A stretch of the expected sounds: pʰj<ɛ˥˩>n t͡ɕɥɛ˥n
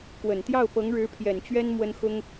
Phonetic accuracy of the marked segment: incorrect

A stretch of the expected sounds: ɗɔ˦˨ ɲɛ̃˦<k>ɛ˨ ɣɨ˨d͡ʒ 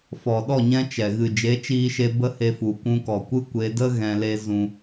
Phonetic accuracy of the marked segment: incorrect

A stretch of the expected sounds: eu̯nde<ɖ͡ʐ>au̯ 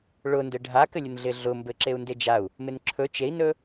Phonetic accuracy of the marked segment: incorrect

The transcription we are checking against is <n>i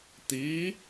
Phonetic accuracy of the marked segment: incorrect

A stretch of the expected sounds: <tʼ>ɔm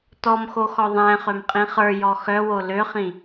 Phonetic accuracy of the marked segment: incorrect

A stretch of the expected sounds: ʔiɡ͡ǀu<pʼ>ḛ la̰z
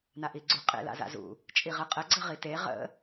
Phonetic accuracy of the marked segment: incorrect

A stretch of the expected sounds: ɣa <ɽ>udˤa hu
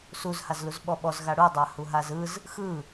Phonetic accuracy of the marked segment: correct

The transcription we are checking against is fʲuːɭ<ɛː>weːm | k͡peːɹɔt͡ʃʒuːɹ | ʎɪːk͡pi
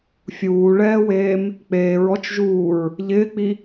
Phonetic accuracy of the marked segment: correct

